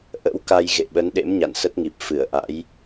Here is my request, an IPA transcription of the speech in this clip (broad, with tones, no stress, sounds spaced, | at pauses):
ʔ ə̰˧˥ w k a˧ j ɣ ḛ˧˨ ɓ ə˨˦ n ɗ ḛ˧˥ m ɲ a̰˧˨ n s ə˦˥ t̚ ŋ i˨˩ p̚ f ɨ˧˩ ə̯ ʔ a̰˧˥ j